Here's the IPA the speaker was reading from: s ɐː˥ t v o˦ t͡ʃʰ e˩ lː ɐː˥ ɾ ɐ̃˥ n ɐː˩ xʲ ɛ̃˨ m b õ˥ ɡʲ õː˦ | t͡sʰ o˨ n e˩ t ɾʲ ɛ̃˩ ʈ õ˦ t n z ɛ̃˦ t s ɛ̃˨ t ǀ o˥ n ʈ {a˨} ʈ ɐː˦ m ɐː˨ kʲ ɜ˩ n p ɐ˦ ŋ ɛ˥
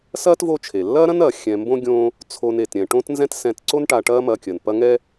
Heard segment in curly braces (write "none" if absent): a˨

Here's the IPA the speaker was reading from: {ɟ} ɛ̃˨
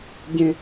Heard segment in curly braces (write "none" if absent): ɟ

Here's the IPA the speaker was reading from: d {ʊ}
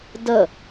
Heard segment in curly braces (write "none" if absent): ə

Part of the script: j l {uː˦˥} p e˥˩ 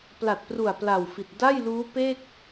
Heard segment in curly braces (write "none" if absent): uː˦˥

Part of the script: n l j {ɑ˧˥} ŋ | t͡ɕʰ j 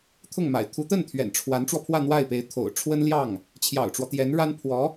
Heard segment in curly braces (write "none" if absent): ɑ˥˩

